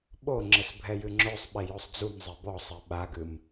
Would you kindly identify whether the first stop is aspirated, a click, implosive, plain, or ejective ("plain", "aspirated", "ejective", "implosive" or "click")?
implosive